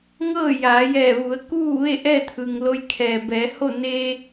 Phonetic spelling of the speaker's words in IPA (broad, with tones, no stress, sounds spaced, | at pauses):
ŋ ɤː˥˨ j aː˩˧ j ɛː˧˩ ʋ u˩˧ ə̯ k uː˥˨ ʋ e˥˨ ʔ ɛː˥˨ t̪ʰ ɯː˩ ŋ l o˧ j kʰ ɛː˩ b ɛː˩˧ h o˥˨ n eː˧